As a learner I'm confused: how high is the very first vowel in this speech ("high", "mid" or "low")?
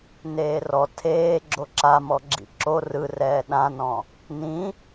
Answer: mid